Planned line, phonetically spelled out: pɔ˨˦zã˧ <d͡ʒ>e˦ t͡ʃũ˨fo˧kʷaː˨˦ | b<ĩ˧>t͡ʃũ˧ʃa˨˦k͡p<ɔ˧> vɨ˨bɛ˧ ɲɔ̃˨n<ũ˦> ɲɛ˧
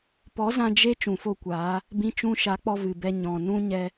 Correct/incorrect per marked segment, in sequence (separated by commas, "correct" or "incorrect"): correct, correct, correct, correct